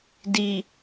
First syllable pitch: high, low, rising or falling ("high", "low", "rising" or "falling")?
low